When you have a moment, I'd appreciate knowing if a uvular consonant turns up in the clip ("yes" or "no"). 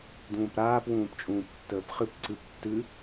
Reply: yes